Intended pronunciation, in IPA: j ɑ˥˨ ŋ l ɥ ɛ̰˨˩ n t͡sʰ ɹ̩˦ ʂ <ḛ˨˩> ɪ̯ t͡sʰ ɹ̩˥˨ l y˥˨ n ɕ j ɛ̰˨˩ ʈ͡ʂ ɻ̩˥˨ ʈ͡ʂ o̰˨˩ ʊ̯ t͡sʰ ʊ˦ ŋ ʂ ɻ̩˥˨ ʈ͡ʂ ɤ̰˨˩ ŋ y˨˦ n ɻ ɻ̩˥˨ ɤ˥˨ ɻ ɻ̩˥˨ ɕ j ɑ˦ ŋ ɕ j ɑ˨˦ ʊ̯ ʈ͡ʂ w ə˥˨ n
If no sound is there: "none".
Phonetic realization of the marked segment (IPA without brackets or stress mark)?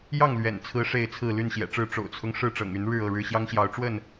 e˥˨